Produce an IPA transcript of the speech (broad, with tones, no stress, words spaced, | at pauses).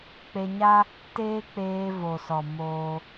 k͡pe˧ɲa˦ | teː˦k͡peː˧ vo˨sɔ˨ moː˧